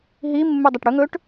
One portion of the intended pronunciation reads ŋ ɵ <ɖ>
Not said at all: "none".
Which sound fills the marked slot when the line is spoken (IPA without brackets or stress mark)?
ʈ